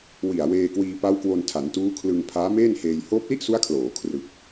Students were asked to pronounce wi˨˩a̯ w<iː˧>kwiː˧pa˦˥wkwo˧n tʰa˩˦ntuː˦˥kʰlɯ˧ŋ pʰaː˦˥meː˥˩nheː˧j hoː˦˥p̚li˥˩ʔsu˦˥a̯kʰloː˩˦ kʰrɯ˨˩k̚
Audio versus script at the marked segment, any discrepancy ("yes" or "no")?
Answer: yes